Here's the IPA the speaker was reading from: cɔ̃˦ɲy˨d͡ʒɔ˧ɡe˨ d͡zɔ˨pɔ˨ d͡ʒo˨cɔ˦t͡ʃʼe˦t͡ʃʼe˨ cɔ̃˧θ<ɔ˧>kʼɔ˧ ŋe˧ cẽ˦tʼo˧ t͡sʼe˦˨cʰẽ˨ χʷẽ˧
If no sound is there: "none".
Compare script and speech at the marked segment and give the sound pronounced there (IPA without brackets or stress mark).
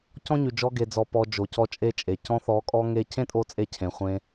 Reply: ɔ˨˦